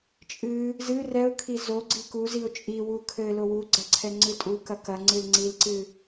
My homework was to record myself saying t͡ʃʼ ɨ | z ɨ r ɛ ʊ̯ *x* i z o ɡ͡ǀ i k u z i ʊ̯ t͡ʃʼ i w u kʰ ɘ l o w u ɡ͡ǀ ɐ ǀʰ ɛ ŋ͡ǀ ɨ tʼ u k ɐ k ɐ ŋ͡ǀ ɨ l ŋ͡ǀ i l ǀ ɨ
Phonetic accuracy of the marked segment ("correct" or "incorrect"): incorrect